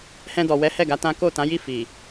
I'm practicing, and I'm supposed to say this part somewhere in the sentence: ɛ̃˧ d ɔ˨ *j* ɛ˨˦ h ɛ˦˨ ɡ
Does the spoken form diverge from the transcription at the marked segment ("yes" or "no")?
yes